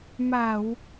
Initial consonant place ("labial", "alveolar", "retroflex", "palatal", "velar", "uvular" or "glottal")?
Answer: labial